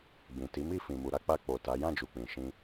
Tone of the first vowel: low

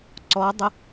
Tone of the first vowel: rising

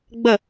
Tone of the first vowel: falling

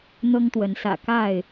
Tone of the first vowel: high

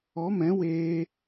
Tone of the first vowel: rising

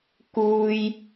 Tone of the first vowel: high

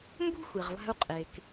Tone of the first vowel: high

